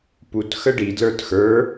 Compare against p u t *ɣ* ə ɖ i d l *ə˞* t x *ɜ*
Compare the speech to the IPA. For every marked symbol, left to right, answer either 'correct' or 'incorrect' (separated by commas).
incorrect, correct, incorrect